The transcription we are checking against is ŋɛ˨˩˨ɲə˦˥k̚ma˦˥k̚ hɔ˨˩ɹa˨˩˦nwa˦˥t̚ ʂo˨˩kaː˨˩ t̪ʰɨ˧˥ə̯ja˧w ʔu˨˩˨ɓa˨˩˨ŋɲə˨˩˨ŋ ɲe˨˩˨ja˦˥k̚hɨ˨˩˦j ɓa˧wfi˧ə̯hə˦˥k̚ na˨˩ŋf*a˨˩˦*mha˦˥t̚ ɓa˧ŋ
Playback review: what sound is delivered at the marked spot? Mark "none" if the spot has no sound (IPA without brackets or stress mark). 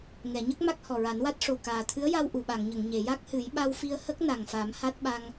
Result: a˨˩˦